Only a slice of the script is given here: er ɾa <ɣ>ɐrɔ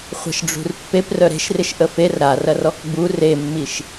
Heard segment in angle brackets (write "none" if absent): r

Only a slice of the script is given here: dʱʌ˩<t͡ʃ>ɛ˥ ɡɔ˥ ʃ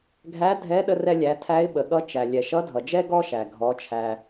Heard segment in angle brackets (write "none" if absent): d͡ʒ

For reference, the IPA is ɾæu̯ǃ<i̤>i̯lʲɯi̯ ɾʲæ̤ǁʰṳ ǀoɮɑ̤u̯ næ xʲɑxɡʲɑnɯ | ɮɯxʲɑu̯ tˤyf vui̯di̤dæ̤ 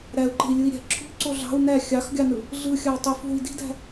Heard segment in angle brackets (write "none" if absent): e̤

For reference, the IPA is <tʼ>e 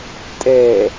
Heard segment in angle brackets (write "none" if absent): tʼ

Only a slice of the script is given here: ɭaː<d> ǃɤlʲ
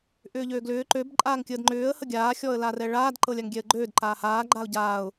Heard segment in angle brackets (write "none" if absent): d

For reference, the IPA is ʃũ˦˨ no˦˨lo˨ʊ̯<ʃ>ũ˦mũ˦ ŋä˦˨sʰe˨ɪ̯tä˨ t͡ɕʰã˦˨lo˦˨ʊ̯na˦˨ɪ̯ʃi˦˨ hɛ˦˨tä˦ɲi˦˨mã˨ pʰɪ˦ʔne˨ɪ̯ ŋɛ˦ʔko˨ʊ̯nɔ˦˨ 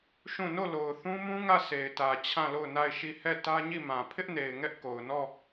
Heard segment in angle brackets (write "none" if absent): θ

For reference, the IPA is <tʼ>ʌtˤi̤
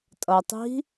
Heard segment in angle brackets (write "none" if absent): tʼ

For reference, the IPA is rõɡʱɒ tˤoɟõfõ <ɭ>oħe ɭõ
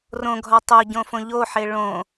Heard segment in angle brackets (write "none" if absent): ʎ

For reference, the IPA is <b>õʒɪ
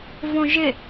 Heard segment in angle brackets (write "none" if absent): v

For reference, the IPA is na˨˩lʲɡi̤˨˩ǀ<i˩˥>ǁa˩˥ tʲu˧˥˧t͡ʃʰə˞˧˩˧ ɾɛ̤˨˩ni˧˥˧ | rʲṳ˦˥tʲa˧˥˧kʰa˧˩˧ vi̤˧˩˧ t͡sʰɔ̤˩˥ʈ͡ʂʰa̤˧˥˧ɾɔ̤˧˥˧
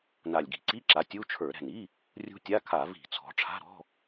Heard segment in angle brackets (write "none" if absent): i˧˥˧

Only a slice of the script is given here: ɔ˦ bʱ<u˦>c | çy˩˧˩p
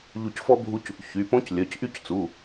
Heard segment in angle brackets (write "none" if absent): u˦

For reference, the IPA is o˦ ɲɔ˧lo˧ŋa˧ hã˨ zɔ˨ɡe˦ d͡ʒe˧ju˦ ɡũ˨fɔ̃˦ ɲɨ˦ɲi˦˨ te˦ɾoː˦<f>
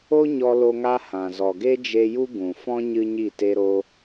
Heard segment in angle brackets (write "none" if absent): none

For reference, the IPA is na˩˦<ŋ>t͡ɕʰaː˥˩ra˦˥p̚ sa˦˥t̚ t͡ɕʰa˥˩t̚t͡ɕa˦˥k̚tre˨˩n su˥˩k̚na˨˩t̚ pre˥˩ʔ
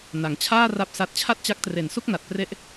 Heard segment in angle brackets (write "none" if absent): ŋ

